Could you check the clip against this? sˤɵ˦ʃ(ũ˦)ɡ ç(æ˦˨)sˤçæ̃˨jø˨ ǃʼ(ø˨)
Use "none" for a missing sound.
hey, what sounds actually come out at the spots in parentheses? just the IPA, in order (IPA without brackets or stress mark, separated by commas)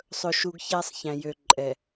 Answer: u˦, æ˦, ɛ˨